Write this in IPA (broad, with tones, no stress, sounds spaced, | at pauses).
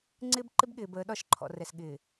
ŋ͡ǀ ɪː˦ b ǃ ɪ˦ b ɠ ɪː˨ b əː˨˦ ɗ ɒ˦˨ ʃ ǃʰ ɔ̰˨ r ɛ˨ s ɠ ɪː˨